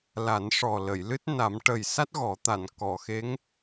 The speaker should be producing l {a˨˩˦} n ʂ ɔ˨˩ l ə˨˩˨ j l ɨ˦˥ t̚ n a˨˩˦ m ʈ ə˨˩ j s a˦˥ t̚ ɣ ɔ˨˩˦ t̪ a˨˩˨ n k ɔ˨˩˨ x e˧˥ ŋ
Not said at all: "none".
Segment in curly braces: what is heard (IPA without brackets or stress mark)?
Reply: a˨˩˦